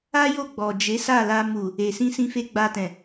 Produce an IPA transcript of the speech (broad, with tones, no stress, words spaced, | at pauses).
a˦jo˦˨ ɡ͡bɔ˨ d͡ʒe˨˦sa˦˨la˧ mu˨ | e˨sĩ˧sĩ˧fe˧ ɡ͡ba˧tɛ̃˨